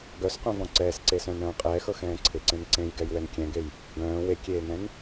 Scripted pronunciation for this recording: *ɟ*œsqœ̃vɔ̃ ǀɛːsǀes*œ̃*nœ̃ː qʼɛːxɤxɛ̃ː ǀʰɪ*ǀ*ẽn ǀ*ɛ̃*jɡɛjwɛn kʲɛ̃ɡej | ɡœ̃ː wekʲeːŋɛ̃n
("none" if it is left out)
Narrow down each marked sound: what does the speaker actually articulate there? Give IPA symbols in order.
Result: ɡ, œ̃, ǀ, ẽ

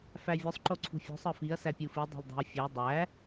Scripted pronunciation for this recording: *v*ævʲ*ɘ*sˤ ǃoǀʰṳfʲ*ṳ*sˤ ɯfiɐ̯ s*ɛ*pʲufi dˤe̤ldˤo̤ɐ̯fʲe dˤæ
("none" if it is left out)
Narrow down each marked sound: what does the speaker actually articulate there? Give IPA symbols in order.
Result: f, ø, ṳ, æ

